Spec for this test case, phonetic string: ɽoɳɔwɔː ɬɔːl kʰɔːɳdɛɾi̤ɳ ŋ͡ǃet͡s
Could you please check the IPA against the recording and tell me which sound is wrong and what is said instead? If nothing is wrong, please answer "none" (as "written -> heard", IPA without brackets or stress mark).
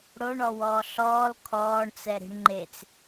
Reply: d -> t͡s